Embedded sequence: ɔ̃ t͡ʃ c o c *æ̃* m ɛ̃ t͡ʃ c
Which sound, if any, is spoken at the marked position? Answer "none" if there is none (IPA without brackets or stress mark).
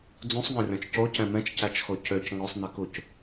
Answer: ɛ̃